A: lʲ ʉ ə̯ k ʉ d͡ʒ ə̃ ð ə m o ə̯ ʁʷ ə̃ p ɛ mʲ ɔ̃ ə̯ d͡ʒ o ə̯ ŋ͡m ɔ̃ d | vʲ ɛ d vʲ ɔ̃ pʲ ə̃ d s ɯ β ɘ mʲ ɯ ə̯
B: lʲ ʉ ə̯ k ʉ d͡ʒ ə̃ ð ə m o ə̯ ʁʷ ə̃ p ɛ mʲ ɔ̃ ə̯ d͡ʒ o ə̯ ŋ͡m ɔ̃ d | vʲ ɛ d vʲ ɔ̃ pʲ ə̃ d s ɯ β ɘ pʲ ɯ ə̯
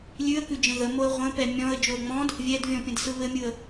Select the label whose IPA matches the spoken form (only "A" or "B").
A